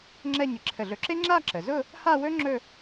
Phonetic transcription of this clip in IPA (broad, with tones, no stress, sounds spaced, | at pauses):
ŋ͡ǁ ɛ˥˧ ɲ ɪ˧˩ ǁʰ ə˧˩ ɮ ɵ˧˥ ǁ e˥ ŋ͡ǁ a˥˧ ǁ ə˩ z ʊ˥˧ | h a˥˧ w ɵ˥ ŋ͡ǁ ɵ˥˧